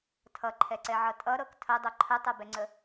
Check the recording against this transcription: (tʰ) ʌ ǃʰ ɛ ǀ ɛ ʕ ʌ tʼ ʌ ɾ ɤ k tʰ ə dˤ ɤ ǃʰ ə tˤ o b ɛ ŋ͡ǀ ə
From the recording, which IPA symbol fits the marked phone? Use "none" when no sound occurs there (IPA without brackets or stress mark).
tʰ